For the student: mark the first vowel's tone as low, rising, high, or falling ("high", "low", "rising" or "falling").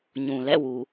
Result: low